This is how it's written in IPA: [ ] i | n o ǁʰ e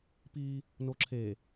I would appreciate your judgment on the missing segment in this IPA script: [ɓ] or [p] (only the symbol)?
p